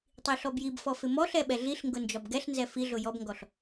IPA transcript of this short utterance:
tˤ i ɬ ɔ b j i b f ɔ f ɪ m ɔ ɬ ɛ ɓ ɛ ɮ i ɬ ŋ ɡ ʊ n d͡ʒ ɒ b ɡ ɛ ɬ n z ɛ f i ɮ ʊ j ɔ b ŋ ɡ ɔ ɬ

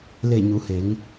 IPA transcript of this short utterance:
l e˧˩ ɲ u˩˧ h e˩˧ ŋ

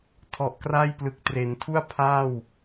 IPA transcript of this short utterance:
tʰ ɔ˨˩ ʔ k r a˥˩ j p l ɯ˨˩ k̚ t r e˩˦ n tʰ u˥˩ a̯ pʰ aː˥˩ w

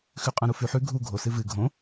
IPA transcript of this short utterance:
x ʉ qʼ ã ɾ u f ʉ ħ ʉ ɡʱ u ɡʱ o s ɨ v ɨ ɡʱ õ

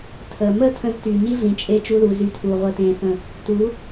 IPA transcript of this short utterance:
tʰ əː˨ m əː˦ tʰ ə̃˧ z t y˨ ɲ i˦ ɮ ĩ˨ t͡ʃʼ e˧ t͡ʃ u˦ ð u˧ z y˧ tʰ uː˨ ʁʷ əː˧ t ẽː˧ θ ə̃˦˨ | t u˨˦

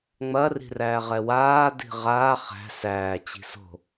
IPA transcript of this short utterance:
ŋ͡m ɐ r i̤ r æː ʁ ɛ w aː d i̤ ʁ aː χ æ̤ s æː t͡ɕ i̤ s o̤

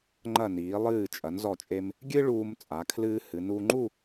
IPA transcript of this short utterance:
ŋ͡ǃ ɐ˧˩ n iː˩˧ lˠ ɨː˧˩ t͡ʃʼ ɐ˩˧ n z ɔ˧˩ t͡ʃʼ e˧ m | ɡʲ ɨ˥ ɭ uː˧ m t͡sʼ a˩˧ kʰ l ɨː˧ h ɨ˩˧ n u˧ ŋ͡ǃ u˥˧

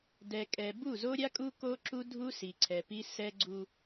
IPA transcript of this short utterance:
d ɛ˨ kʼ ɛ˨ b u˦˨ z o˦ ɾʲ a˦ kʼ u˦ k o˦ ǁ u˦ dʱ u˦ s i˨ ǀʰ ɛ˨ p i˦ s ɛ˦ ɡ͡ǀ u˦

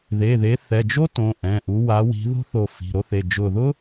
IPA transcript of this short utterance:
ð e˩˧˩ ð e˨˦ θ ɛ˩˧˩ d͡ʒ o˥ t õ˩˧˩ ʔ ɛ̃˩˧˩ ʔ u˨˦ w a˨˦ w i̤˨˦ ð o̤˥ θ o˧˩ f i̤˩˧˩ ɾ o˥ θ e˩˧˩ d͡ʒ ʊ˧˩ ð ʊ˥

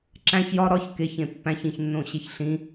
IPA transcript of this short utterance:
ǁ æ̃ ç j ɒ ɾ ɒ ç k e ç ẽ pː æ̃ ç ĩ ç nː õ ɕ e ç ɬ ĩ

